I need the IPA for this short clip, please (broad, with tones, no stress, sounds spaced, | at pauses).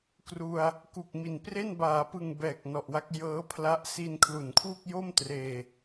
k r u˧ a̯ | k u˨˩ k̚ m i˨˩ n p r e˥˩ n b aː˩˦ p ɯ˨˩ ŋ b ɛː˨˩ k̚ n ɔ˨˩ ʔ w a˦˥ k̚ j ɤː˦˥ pʰ l a˦˥ ʔ s i˧ n kʰ l u˨˩ n kʰ w u˥˩ k̚ j o˥˩ m t r eː˧